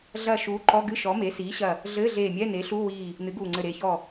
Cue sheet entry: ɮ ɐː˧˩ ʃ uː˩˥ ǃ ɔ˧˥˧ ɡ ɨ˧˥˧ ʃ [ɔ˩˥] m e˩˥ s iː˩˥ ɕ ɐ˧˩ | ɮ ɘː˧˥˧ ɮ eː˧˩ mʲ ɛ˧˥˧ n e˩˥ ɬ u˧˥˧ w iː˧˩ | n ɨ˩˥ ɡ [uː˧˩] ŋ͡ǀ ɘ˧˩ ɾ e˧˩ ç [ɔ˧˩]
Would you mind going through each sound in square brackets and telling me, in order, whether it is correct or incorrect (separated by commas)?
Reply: correct, correct, correct